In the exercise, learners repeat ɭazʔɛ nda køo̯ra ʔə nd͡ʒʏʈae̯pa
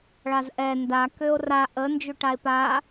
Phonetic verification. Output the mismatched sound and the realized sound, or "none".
none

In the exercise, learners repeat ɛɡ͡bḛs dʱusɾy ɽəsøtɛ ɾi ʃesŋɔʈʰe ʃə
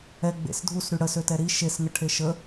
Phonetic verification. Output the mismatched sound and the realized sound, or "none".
ɔ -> ə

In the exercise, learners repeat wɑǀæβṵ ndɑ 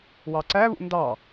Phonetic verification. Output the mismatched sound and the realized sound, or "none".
none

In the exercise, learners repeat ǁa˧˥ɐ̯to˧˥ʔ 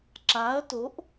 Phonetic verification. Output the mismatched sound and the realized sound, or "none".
none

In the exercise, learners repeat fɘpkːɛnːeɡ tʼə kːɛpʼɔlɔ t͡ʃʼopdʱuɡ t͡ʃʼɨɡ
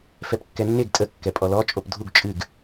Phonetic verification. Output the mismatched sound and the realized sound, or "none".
ɘ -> ɛ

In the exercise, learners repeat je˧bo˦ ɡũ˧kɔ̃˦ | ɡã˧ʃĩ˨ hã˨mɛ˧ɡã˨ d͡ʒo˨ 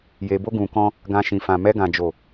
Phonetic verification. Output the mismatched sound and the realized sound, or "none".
h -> f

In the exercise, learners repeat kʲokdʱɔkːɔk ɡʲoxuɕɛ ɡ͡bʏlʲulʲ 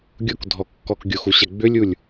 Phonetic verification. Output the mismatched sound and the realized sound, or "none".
kʲ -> ɡʲ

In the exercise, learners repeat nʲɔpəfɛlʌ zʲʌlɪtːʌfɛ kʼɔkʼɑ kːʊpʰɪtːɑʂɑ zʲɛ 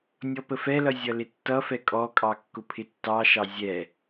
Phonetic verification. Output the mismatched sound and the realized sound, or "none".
ʂ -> ʃ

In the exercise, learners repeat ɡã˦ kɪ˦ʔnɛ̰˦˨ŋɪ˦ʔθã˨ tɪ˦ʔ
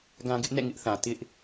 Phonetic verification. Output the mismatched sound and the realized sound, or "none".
k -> ɡ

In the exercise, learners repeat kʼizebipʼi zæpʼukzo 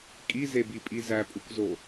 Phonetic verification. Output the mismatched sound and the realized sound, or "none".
none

